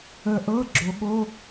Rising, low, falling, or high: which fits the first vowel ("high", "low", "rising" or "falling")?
low